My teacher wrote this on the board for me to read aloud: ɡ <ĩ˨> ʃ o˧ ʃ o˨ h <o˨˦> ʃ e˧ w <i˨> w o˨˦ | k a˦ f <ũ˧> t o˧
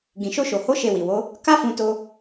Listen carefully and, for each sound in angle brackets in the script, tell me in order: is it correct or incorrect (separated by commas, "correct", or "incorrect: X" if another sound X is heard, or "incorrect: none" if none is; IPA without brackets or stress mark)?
correct, correct, correct, correct